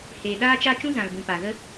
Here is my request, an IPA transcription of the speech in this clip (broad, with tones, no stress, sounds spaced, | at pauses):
h eː˨ ɗ aː˦ t͡ʃ a˦ t͡ʃ ũ˦ z ã˨ l b ũ˨ p a˨ ɣ ə˦